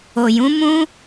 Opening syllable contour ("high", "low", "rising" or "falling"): low